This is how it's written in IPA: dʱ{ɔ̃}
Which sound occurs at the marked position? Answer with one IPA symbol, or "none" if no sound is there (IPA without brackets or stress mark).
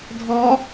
ɔ